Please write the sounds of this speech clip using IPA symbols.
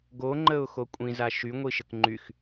ɡ o ŋ͡ǃ ə ʊ̯ x o kʷʼ ĩ z a ʃ y ŋʷ i ʃ ə k ŋ͡ǃ y x

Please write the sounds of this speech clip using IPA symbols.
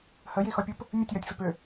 h ə j i x ɔ pʲ u p | mʲ ə tʲ j ɒ tʲ f ʏ p ʏ

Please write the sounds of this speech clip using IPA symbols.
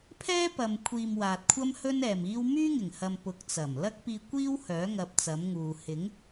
pʰ ɛː˥ p ɐ˨ m kʷʰ iː˨ m w aː˨ t̚ kʷʰ ɐ˥ m h ɵ˥ n ɛː˨ m iː˥ w m yː˥ ŋ ɪ˨˩ ŋ h ɐ˨ m p ʊ˨˥ k̚ t͡s ɐ˨˩ m l ɐ˥ k̚ p iː˧ kʷ iː˥ w h œː˨˥ ŋ ɐ˧ p̚ t͡s ɐ˨˥ m ŋ uː˨ h ɪ˨˥ ŋ

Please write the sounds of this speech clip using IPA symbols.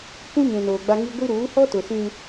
kʷ ũ˦ ɲ ũ˨ n oː˨ ɡ͡b a˦ ŋ i˦ ɡʷ i˦ ɾ uː˨˦ h ɔ˦ t ʊ˨ s ĩ˦

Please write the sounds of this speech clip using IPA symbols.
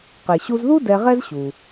q e˩ ɕ u˧ z ð u˥ d ɛ˧ ʁ ɛ˥ z ɕ u˩

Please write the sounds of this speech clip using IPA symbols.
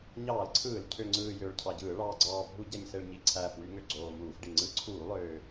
ɲ ɑː˧˩˧ l ǀʰ ɯː˧˩˧ l cʰ ø˨˩ ŋ͡ǀ ɯː˨˩ j øː˨˩ ɭ cʰ ɑ˨˩ ɟ ɯː˧˩˧ ɭ ɑː˨˩ ɡ͡ǀ ɑː˨˩ bʱ u˧˩˧ ɟ æ˨˩ ɲ s e˨˩ ɭ ɲ i˨˩ ǀʰ æː˨˩ f w y˧˩˧ ŋ ø˨˩ ɡ͡ǀ oː˨˩ m uː˧˩˧ f ɖ i˨˩ ŋ͡ǀ ɯ˧˩˧ ǀʰ uː˧˩˧ lˠ øː˨˩

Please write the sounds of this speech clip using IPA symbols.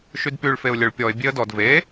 ʃ y d p y ɭ f e ʊ̯ lʲ ɵ ɭ pʲ ɔ ɪ̯ bʲ e ə̯ d ɔ d v e

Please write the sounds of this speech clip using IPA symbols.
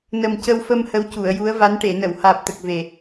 n ə˨˩ m c ə˧ w f ə˧ m h ə˧˥ w c u˨˩˨ ə̯ j u˧˥ ə̯ v a˧˥ n ʈ e˨˩˨ n ə˨˩˨ w h aː˨˩ p̚ t̪ ə˨˩ k̚ v e˨˩

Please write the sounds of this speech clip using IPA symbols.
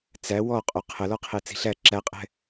t͡s æ w ɔ qʼ o qʰ ə l ɔ qʰ e t͡s i̤ ɬ æ ǁ æ qʼ ɛ̤

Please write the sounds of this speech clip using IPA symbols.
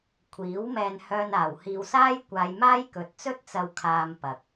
kʷʰ iː˨˥ w m ɛː˧ n h œː˧ n aː˨˩ w h iː˧ w s aː˥ j kʷ aː˨˧ j m aː˥ j k ɵ˨ t̚ t͡s ɵ˥ t̚ t͡s ɐ˨ w kʰ aː˨ m p ɐ˨ k̚

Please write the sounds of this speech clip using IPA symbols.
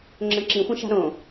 ŋ͡ǁ ə̃ ǁ ĩ xʷ ə̃ ʃ a̤ ɾ õ

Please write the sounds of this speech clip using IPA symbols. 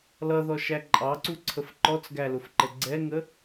l ʌ ð ɔ ʃ æ ǃʼ ɑ ǀ u ǀʰ ə f ǃ ɔ t͡s ɡ æ l ʊ f ǃ ə ɡ͡ǀ ɛ ŋ ə

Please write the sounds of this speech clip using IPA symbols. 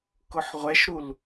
k ʊ ħ ʁʷ ɛ ʃ ɾ u l

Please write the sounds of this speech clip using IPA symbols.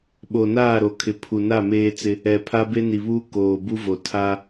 ɓ o˨ n aː˦˨ ɾ o˨ kʰ ɪ˨ pʰ u˨ n a˦˨ m eː˦ t͡s ɪ˦ | ɛ˨ pʰ a˦ b e˦ n i˨ β uː˦ k oː˨ b u˦ v o˨ tʰ a˦

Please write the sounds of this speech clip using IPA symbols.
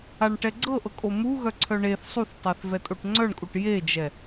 a ɳ ʈ ɛ ɡ͡ǀ ɤ ʔ ɤ kʼ o m u ɣ œ ǀʰ œ ɳ e θ sˤ u θ tˤ e θ v ɛ tʼ o ʈ ŋ͡ǀ œ ɳ kʼ u ʈ j e d͡ʒ ɛ

